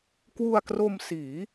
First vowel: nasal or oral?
oral